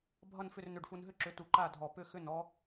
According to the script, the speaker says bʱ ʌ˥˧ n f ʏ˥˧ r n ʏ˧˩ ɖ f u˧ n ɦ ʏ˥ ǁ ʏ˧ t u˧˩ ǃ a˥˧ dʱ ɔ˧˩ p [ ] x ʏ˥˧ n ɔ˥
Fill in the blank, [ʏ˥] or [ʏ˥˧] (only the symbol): ʏ˥